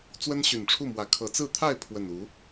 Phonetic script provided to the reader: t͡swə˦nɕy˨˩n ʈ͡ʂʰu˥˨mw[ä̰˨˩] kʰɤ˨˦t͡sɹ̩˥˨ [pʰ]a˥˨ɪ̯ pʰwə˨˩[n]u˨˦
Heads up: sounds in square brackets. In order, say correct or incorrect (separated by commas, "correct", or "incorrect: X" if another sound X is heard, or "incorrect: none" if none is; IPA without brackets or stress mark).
incorrect: ä˨˦, incorrect: t̪ʰ, correct